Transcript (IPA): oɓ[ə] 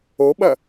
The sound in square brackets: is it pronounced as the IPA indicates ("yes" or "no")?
no